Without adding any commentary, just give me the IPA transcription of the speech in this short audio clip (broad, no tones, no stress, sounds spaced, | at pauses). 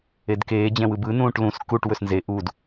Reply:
e d k eː d͡ʑ ɛ̃ w ɯ b ɯ n ũː ʈ l ũ s k u ʈ w ɵ s n z e ʔ u d